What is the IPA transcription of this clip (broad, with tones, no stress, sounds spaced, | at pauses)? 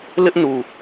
l ɪ˦ ʔ n u˨